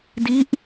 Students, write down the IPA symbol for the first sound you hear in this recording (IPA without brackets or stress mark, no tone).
d